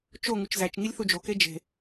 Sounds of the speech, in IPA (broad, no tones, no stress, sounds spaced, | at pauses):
t͡ʃ o ŋ u t͡ʃ z æ t͡ʃ ŋ i lʲ θ u d͡ʒ o k e d͡ʒ e̤